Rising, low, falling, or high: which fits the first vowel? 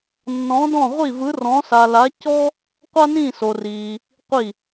rising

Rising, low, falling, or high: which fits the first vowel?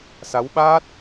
rising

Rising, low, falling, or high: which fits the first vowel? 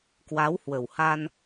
rising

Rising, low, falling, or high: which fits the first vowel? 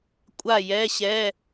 falling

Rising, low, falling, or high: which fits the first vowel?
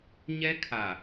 high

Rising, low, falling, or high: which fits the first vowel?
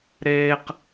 high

